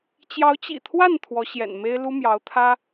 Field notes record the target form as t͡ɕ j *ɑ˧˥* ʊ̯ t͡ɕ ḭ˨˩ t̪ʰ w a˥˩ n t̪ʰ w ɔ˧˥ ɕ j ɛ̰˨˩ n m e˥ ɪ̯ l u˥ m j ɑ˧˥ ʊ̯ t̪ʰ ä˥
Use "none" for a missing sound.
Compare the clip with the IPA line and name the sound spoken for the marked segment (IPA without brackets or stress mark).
ɑ˧˥